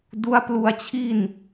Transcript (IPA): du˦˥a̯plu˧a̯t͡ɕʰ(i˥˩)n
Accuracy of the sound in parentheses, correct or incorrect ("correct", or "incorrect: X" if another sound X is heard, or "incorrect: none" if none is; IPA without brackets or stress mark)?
correct